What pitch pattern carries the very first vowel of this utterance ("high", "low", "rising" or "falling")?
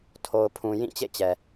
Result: low